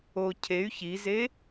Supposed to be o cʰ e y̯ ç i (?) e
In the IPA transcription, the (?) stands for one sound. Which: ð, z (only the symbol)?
z